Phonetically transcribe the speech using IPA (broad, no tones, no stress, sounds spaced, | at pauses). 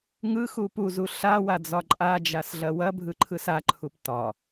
ŋ ɯ x u p u z u ɬ a w a d͡z ɒ ǃʼ a d͡ʒ a s ɮ ɐ w ɐ bʱ ɯ ǃʰ ɯ s a ǃʰ u p t ɒ